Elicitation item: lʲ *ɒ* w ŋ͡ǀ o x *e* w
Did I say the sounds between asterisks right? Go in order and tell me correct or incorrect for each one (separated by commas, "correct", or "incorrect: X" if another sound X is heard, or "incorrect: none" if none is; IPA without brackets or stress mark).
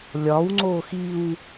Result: correct, incorrect: i